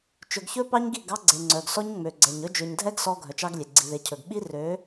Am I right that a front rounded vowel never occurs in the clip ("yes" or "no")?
no